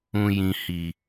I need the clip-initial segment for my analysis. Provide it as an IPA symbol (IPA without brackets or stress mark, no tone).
ũ